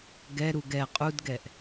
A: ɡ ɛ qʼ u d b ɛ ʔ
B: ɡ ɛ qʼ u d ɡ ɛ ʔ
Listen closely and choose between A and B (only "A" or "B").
B